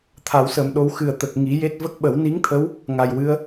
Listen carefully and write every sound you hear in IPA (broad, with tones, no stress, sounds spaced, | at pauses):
t̪ʰ a˨˩˦ w s əː˨˩ m ɗ o˧ w x ɨ˨˩ ə̯ t̪ ə˨˩ k̚ ŋ i˨˩˦ j e˦˥ t̚ v ə˦˥ k̚ ɓ ə˨˩˦ w n i˧˥ ŋ t̪ʰ ə˧˥ w | ŋ a˨˩ j w ɨ˧˥ ə̯